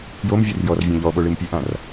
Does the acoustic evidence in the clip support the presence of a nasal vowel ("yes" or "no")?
yes